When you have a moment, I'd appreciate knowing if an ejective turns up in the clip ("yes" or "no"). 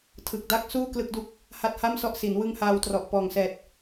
no